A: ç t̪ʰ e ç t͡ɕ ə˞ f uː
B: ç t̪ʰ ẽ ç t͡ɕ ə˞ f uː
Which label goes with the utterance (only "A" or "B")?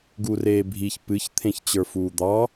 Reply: B